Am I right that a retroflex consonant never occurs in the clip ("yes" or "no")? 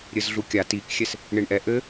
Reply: no